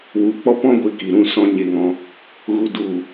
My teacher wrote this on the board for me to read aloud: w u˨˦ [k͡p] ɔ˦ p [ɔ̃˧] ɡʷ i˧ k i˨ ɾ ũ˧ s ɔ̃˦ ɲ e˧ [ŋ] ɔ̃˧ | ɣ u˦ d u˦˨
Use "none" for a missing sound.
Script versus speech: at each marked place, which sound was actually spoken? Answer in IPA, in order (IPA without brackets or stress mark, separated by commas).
k͡p, ɔ̃˦, ŋ